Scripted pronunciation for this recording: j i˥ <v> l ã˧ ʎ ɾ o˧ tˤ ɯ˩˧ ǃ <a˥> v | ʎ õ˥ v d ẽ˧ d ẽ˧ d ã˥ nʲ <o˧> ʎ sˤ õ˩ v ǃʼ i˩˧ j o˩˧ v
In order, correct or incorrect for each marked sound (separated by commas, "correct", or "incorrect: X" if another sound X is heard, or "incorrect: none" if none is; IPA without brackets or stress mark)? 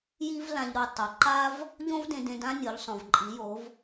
correct, correct, incorrect: o˩˧